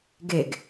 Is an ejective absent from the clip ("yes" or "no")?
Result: yes